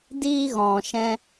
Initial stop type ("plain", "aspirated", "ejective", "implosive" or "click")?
plain